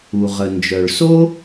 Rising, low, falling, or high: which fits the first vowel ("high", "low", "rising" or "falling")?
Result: low